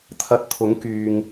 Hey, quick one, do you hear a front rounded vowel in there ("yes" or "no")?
yes